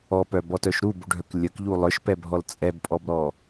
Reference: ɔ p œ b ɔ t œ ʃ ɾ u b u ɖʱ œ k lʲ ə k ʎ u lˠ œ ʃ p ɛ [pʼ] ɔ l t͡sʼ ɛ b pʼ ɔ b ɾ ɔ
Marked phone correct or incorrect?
incorrect